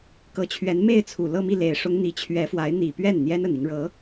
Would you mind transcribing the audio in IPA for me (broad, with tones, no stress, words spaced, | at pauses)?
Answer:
kɤ˧˥t͡ɕʰɥɛ˧˥nme˥˩ɪ̯t͡sʰu˨˩ lɤ˥˧mi˥˩ le˨˩ɪ̯ʂʊ˥ŋ n̪i˧˥t͡ɕʰɥɛ˧˥fwa˧˥ɪ̯ n̪i˨˩pɥɛ˥˩n n̪jɛ˥nə˨˩ni˦ŋɻɤ˧˥